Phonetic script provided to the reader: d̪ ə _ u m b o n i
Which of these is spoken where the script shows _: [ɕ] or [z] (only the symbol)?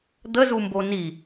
z